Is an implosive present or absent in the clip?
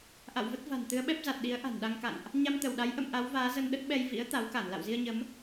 present